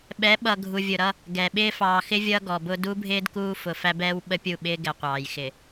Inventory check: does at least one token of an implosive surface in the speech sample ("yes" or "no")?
yes